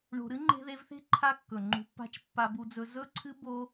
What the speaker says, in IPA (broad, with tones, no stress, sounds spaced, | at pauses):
ɳ o̤˧ ɾ ɨ˦ ŋ͡ǃ e̤˧ ð e˧ v θ e̤˦ ǃʰ a˦ kː ɵ˨ ŋ͡ǃ ṳ˧ pː a̤˦ t͡ʃ pː a˧ b u˧ d͡z ɵ˧ z ɵ˦˨ ǀʰ ɨ˦ b o˦